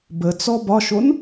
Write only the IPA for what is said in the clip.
bət͡sɔ bɒʃon

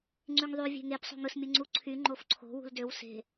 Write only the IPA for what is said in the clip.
ŋ͡ǀyŋðˤy vʲe̤ŋep sˤo̤ŋɯs mʲɯŋ͡ǀuǀʰy ŋ͡ǃofǀʰo̤ wṳldøw se̤

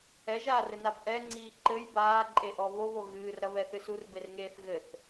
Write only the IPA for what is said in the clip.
ɛʒaːrɘnab ʔɛŋ͡ǀiː ǃɘj baːǃʼeʔɔ βoβo ɣɨːrɾɐβɛθɨs urberŋeːθ ɣɘθ

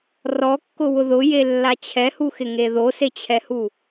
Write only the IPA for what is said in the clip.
rɔkːʊwʊ ðʊjelːa t͡ɕʰɛhuxɪŋe ðoset͡ɕʰɛhu

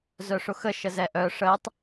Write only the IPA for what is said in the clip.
zœʂʊxə ʃəzɛʔœ ʂətˤ

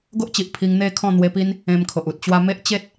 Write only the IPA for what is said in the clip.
ɡo˦ʔt͡ɕi˨ʔ pʰi˧ŋn̪e˥˧ kʰɔ̃˥˧n̪we˧pi˦n | ẽ˧mkʰo˨ʔ u˨t̚t͡ɕwa˧me˦ʔ t͡ɕe˦t̚

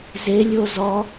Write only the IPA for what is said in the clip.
zelʲo zɔ

